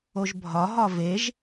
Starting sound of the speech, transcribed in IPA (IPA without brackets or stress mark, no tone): o